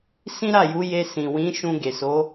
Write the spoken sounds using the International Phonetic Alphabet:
s ĩ˦ ɾ a˦˨ j u˨˦ j e˧ s ĩ˨ w ĩ˨˦ ʃ ũ˧ ɡ e˨ s o˨˦

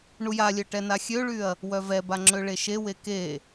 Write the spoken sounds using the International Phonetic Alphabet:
ɳ u j a lʲ œ ʈ ɛ n a xʲ ø ɭ y ɐ̯ | w œ v ɛ b a ŋ͡ǁ ø ɭ e ʃ e w e k e

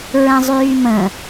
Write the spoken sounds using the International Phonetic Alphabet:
ɹ ɛ̃ zˤ yː m ə̃

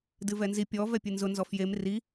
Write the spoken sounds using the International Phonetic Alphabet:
d ɨ v ɛ n z i pʲ ɔ v ɛ pʲ ɨ n z ʊ n z ɔ f j e m r i

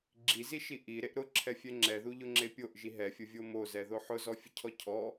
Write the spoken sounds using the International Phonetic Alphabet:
ɡ͡ǁ i z i ʃ i ʔ i ɾ e ʔ ɾ ʊ ǁʰ ɛ fʲ ɛ ŋ͡ǁ ɛ ð u ʎ ʊ ŋ͡ǁ e pʲ o ʔ ʒ i ɦ ɛ fʲ ʊ vʲ o m o z ɛ ð o ħ ʊ z ɔ fʲ ʊ cʰ ɔ cʰ ɔ

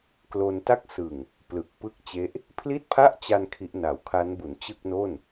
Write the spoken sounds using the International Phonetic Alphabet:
k l o˧ n t a˥˩ k̚ s ɯ˨˩ ŋ | p l ɯ˨˩ k̚ p ɯ˥˩ k̚ t͡ɕ e˦˥ ʔ | pʰ l i˥˩ t̚ pʰ a˥˩ ʔ t͡ɕ a˧ n kʰ i˦˥ ʔ n a˨˩ w kʰ a˦˥ n b u˩˦ n t͡ɕ ɯ˥˩ k̚ n o˥˩ n

